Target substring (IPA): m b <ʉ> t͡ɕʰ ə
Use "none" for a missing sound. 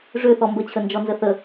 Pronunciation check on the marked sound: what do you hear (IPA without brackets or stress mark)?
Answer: ə